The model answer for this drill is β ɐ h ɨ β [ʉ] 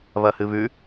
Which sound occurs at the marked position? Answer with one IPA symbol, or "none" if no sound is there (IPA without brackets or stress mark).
ʉ